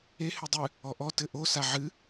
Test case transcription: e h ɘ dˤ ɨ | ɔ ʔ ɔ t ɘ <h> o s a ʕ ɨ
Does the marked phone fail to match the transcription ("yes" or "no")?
yes